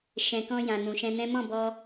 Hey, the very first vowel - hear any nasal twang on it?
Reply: yes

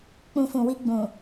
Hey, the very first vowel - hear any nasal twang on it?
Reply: yes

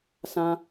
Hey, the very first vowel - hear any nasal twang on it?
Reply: yes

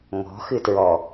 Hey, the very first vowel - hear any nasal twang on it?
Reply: no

